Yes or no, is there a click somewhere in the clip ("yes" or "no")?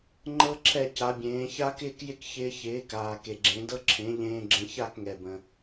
yes